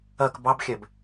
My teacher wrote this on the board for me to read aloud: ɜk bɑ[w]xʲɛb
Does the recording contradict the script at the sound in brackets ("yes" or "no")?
yes